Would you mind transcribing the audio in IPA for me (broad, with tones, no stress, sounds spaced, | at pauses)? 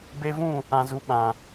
b e˧ v ũ˦˨ | ã˨ z u˨ ɓ ã˨